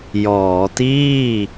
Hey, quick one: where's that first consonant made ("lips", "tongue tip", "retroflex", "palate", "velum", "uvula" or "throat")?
palate